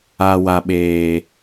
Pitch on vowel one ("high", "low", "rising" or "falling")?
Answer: low